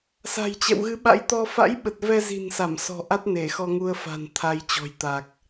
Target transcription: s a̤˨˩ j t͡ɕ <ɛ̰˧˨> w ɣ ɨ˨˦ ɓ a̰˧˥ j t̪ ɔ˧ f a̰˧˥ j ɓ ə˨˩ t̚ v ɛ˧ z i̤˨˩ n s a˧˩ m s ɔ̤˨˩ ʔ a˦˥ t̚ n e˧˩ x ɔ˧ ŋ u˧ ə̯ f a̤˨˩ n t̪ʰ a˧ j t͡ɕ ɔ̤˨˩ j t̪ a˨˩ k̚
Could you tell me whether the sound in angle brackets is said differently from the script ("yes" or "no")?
no